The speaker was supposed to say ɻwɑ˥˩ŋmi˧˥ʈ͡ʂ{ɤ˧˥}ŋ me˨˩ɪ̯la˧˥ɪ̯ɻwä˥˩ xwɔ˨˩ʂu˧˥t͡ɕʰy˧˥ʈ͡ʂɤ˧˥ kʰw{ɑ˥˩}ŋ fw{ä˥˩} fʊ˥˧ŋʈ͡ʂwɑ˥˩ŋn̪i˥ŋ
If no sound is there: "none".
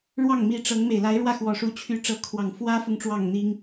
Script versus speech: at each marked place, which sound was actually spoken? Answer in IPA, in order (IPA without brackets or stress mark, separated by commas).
ɤ˧˥, ɑ˨˩, ä˥